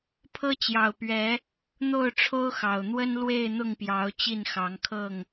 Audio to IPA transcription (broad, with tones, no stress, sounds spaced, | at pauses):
pʰ ɤ˦ t͡ɕ j ɑ˨˩ ʊ̯ p ɥ ɛ˨˦ | n̪ o˥˨ ʊ̯ ʈ͡ʂʰ o˦ ʊ̯ x ɑ˨˩ ʊ̯ n̪ w ə˦ n l w e˥˨ ɪ̯ n̪ ʊ˥˨ ŋ p j ɑ˨˦ ʊ̯ t͡ɕ i˥˨ n x ɑ˨˦ ŋ kʰ ɤ˥˨ ŋ